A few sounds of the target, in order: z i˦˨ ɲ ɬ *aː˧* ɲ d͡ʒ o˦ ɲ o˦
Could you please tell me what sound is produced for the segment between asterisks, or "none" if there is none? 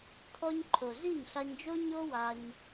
a˧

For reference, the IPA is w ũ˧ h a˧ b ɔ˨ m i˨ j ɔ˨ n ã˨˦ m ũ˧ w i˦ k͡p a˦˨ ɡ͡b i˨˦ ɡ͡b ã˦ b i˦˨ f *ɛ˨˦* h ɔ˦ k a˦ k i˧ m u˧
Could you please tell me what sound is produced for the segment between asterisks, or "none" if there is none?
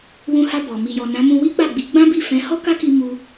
ɛ̃˨˦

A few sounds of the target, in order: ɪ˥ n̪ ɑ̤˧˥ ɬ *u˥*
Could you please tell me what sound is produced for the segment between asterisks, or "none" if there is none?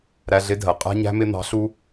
u˥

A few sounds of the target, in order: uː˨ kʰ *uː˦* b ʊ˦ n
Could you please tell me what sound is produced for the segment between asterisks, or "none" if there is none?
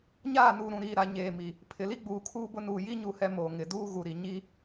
uː˦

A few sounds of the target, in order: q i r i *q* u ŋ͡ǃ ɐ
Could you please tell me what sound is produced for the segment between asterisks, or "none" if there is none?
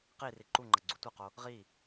ǃ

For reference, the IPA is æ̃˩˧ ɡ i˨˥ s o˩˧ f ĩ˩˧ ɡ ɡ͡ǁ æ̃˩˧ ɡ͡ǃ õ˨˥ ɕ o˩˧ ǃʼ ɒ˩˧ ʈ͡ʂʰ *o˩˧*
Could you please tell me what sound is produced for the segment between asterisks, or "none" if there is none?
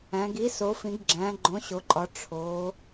o˩˧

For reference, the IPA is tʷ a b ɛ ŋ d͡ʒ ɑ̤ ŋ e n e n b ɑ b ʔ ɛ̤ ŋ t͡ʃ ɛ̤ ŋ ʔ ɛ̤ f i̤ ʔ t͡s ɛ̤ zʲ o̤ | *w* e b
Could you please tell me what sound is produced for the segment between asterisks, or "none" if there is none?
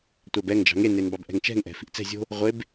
ʁʷ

